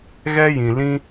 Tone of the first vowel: high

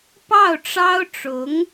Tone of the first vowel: falling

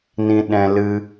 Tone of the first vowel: low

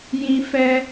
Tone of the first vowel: high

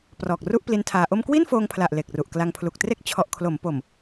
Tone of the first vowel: low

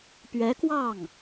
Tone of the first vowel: rising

